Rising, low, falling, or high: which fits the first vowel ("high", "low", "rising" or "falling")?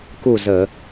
falling